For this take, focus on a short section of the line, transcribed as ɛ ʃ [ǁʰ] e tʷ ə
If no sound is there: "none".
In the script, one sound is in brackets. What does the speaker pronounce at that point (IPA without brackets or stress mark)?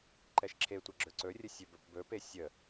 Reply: ǁʰ